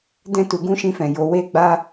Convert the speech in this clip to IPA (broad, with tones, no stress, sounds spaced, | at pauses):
d ɛ̃˦ t u˧ ɡ ũ˦ ʃ ĩ˧ f ɛ̃˨ j o˨˦ w e˦ ɡ͡b a˦